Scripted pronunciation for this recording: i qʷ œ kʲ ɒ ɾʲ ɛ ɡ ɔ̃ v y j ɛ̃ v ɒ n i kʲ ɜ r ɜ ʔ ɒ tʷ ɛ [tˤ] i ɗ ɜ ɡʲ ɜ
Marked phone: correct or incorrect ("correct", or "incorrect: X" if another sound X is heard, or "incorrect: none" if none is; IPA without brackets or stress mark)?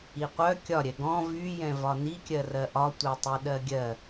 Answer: correct